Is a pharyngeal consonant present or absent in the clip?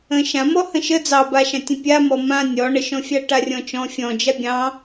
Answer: absent